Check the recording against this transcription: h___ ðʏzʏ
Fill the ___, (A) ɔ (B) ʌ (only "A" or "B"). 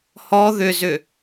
A